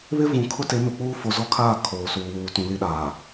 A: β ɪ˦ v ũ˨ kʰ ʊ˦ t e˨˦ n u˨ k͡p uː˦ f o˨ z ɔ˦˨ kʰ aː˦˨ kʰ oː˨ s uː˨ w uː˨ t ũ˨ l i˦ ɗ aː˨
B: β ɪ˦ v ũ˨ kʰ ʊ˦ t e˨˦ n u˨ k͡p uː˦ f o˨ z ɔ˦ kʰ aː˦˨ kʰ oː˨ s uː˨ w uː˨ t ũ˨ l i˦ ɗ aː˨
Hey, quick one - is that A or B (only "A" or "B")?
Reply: A